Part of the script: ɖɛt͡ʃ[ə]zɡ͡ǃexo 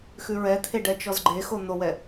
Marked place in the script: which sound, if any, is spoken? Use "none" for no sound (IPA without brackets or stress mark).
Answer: ɔ